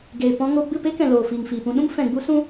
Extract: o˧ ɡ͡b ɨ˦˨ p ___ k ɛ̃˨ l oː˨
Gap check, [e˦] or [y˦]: e˦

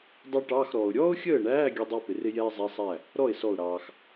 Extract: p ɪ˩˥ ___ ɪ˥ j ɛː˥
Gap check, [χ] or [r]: r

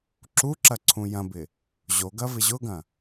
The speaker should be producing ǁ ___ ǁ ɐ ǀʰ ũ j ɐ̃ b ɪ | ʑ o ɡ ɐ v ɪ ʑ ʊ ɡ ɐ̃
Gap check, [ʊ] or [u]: u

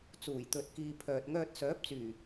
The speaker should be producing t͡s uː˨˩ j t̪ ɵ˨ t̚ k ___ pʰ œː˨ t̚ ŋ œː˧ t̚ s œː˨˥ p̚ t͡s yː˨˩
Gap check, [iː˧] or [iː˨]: iː˨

